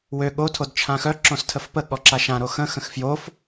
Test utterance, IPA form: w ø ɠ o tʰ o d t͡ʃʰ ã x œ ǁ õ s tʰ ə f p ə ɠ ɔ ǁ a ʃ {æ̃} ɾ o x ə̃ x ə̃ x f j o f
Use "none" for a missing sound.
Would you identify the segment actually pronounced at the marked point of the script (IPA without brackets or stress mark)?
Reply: ã